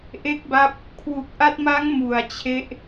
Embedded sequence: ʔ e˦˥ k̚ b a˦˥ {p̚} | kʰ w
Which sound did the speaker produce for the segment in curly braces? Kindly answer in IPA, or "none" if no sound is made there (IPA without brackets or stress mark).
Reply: p̚